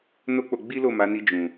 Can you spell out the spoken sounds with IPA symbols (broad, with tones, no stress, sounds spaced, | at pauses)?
n o˦ k͡p o˧ ɡ͡b i˦ l o˦˨ m a˨˦ n i˧ d͡ʒ ũ˨